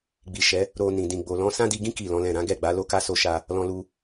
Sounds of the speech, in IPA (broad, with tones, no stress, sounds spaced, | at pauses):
ɡ͡b i˨ ʃ ɛ˨˦ | ɾ o˨ n ĩ˨ d ĩ˨ ɡ͡b o˨ l ɔ̃˨˦ s ã˦ d i˧ ɡ ĩ˦ k i˦˨ l ɔ̃˨˦ l ɛ̃˦˨ ɾ ã˨˦ ɡ ɛ˦˨ ɡ͡b a˨˦ l o˦ k a˦ s o˦ ʃ a˦ | l ɔ̃˧ l u˧